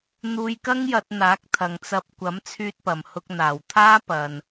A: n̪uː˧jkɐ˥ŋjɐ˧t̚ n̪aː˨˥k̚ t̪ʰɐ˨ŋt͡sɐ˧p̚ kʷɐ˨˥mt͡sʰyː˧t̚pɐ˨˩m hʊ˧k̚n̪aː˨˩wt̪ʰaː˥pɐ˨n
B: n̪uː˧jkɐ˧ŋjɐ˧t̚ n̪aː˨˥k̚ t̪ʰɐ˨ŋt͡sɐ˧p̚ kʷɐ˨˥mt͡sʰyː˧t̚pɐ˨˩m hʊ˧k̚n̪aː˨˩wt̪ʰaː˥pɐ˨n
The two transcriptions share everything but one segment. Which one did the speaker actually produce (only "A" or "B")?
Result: A